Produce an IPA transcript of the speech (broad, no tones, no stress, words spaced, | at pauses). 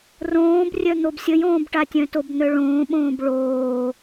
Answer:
rõːbrʲœ n̪obsʲəjõːbʈa tʲœ̃tobn̪œ ɭõːɓõːb ɭoː